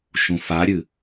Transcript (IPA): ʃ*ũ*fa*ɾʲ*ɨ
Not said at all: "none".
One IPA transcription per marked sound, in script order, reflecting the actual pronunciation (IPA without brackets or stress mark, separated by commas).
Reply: ũ, ɾʲ